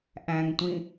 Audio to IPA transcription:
ʔ æ̃ ŋ tʷ ĩ

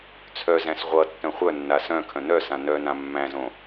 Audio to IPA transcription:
t͡sʰ œ z æ̃ s ʁʷ ʌ tː œ̃ χʷ œ nː a s œ̃ kʰ œ̃ n œ s ã n œ n ã mː æ̃ z õ

